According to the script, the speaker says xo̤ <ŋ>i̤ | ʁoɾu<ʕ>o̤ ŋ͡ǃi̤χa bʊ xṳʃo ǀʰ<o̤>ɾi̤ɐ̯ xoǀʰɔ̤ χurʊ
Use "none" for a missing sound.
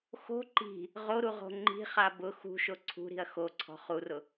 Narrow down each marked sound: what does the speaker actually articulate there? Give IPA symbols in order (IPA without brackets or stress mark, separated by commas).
ǃ, ʁ, ṳ